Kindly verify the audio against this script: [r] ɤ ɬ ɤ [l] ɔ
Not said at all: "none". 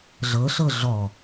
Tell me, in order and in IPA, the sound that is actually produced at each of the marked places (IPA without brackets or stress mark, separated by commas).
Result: ɮ, ɮ